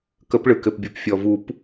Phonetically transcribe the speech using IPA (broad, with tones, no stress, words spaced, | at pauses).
kə˨˩˦pɭɯ˩kɘ˩pbʲo˩p fʲɔ˩vu˨˩˦p